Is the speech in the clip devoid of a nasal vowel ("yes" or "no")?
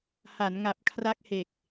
yes